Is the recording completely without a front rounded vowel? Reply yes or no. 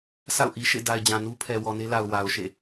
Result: yes